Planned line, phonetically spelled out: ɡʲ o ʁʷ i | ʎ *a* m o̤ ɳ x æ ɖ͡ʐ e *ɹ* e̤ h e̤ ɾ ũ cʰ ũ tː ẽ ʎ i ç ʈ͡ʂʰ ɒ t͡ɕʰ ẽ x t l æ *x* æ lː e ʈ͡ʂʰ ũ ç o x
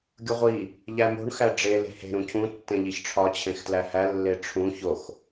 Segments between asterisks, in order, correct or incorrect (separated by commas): incorrect, incorrect, incorrect